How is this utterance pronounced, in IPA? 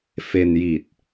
fe˧nji˨˩t̚

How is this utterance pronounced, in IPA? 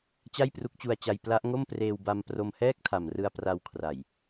t͡ɕa˥˩jpru˦˥k̚t͡ɕu˧a̯t͡ɕa˧j pla˦˥ʔŋo˥˩m preː˧wba˧m pro˧mhɛː˥˩k̚tʰa˨˩mrɯ˧a̯ pra˧wkʰra˨˩j

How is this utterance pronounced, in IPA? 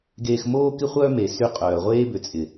ɡeː˧xmoː˦kɪ˦χʷœː˦ me˨ sy˦qʼœː˨ ʁʷeː˦bʏ˨t͡sʼɪ˨

